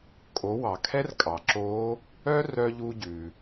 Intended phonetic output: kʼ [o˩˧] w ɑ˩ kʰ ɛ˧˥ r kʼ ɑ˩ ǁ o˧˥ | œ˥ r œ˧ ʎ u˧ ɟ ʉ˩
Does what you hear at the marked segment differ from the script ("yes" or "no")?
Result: no